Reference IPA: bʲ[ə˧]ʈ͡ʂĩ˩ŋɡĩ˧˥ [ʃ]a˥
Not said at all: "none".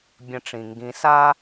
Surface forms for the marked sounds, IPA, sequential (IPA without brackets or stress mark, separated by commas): ə̃˧, s